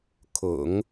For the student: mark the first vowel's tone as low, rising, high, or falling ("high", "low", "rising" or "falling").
low